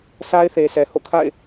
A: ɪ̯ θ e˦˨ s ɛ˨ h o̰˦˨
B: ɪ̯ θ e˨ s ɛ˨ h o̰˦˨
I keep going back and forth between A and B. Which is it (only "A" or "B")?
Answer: B